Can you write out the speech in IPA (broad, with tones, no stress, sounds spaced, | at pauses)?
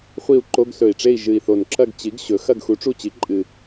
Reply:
χʷ i˦˨ u̯ ǃ o˧˥˧ ɡ s ɵ˨˩ i̯ ʈ͡ʂ e˦˨ i̯ ʒ ɨ˨˩ i̯ θ o˨˩ n ǁ ɐ˦˨ ɡ t͡ɕ i˩˥ ɡ ɕ ɵ˩˥ x ɐ˦˨ ɡ x u˩˥ ʈ͡ʂ u˦˨ t͡ɕ i˩˥ ǃʼ ɨ˨˩